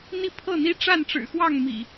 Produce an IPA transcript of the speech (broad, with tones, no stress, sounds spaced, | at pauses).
n̪ i˥˨ pʰ ɤ˥˨ n̪ i˦ ʈ͡ʂ a˥˨ n ʈ͡ʂ ɻ̩˨˩ x w ɑ˥˨ ŋ m ḭ˨˩